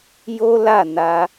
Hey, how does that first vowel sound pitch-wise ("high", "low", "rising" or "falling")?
high